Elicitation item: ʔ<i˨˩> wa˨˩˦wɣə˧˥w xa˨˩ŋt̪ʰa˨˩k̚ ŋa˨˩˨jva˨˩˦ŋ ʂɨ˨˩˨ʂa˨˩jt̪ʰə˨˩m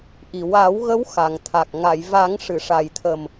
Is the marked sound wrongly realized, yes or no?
no